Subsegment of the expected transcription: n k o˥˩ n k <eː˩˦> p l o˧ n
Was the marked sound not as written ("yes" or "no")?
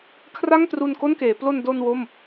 no